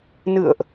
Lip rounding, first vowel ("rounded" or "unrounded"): unrounded